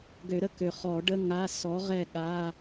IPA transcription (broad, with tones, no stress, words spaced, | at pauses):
ɡø˨˩˦ɾə˨ kø˨χɔ˨˩˦ɖə˧˥˧ ŋa˧˥˧ sɔ˨˥ ʁɛ˦˨ɠa˧˥˧